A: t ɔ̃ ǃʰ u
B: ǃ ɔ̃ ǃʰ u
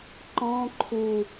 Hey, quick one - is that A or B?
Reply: B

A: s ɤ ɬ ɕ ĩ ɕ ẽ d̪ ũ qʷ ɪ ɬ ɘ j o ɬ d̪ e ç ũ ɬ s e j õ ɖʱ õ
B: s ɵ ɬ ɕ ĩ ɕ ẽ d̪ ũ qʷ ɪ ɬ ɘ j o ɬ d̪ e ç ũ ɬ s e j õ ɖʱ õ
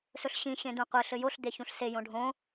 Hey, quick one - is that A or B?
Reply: B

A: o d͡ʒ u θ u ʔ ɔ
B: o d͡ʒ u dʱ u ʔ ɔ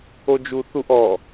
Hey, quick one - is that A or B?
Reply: A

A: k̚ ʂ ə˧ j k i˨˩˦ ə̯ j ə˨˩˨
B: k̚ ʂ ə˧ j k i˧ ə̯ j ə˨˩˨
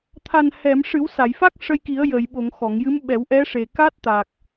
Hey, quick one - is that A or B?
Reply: A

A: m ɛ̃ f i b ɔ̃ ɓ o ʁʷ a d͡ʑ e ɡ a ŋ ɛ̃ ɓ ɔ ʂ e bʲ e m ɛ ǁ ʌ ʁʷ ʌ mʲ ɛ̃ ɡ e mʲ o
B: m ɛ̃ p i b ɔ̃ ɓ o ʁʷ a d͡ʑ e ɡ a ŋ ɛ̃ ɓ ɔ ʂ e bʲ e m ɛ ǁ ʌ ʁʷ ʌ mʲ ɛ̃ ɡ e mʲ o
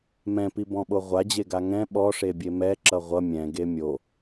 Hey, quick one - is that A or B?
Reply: B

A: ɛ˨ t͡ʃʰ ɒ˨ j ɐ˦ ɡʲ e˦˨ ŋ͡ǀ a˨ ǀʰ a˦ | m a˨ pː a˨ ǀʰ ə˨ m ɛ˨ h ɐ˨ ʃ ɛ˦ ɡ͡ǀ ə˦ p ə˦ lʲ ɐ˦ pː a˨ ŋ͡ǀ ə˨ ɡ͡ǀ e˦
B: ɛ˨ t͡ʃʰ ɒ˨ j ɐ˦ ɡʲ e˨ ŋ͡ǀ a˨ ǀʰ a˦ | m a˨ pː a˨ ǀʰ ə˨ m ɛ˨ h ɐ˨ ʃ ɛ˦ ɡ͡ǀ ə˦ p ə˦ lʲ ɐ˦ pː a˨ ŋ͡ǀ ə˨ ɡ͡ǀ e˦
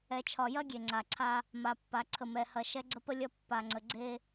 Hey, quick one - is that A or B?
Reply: B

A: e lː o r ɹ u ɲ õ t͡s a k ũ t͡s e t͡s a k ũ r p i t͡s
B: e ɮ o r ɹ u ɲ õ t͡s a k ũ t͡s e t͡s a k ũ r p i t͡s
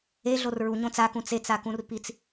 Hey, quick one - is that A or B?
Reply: B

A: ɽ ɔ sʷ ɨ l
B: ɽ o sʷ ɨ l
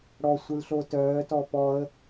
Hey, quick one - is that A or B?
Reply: A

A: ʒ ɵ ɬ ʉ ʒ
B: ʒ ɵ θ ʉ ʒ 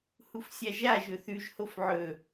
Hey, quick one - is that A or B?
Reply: B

